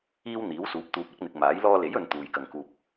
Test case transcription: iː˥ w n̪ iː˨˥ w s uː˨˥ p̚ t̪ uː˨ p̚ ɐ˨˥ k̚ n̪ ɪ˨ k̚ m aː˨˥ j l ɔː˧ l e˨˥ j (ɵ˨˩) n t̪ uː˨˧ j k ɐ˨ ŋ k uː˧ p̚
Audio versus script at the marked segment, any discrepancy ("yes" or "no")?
yes